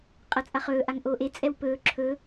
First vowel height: low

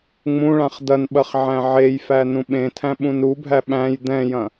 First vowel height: high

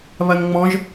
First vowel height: low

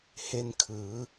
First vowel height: mid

